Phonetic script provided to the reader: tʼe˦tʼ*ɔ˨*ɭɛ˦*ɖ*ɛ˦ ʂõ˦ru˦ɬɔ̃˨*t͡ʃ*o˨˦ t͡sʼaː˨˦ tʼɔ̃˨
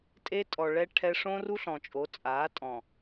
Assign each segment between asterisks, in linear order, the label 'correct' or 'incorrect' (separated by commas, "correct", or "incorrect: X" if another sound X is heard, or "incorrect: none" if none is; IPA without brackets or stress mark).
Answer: correct, incorrect: ʈʰ, incorrect: t͡ʃʼ